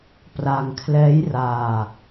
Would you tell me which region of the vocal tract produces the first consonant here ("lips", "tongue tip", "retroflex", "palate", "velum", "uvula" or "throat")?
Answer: lips